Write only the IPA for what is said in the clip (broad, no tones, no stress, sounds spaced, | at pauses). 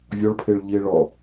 vʲ ɒ ɭ pʰ e ɭ ʎ i e̯ ɭ ɒ